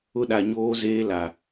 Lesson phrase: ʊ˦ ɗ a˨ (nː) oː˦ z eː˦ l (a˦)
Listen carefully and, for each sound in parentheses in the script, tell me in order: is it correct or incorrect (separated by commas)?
incorrect, incorrect